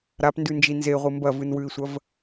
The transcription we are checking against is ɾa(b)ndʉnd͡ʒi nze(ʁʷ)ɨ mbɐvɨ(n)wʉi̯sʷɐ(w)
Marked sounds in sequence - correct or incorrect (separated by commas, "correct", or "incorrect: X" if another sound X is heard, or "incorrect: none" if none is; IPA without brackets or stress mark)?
incorrect: p, correct, correct, incorrect: v